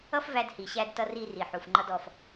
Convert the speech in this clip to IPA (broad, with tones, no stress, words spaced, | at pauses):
ʌ˥fvæ˧d hi˩ɕæ˧dtʌ˧ ri˧ ri˩ħu˩fŋ͡ǃʌ˧d ɔ˩f